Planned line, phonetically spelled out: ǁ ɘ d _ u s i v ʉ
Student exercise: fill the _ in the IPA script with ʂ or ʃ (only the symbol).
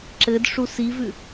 ʂ